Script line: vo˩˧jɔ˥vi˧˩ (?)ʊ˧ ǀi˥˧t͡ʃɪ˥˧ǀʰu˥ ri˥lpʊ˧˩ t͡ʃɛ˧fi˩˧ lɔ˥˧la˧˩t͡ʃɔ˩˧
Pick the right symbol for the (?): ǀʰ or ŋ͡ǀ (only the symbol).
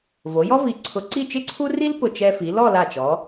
ǀʰ